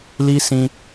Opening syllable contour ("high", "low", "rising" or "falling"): high